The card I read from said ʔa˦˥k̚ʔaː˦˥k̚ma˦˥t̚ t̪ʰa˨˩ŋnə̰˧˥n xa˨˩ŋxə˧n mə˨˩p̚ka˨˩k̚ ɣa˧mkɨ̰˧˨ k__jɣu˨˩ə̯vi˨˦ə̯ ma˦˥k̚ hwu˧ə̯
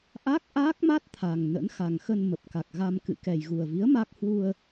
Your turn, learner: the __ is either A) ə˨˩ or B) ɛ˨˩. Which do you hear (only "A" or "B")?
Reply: B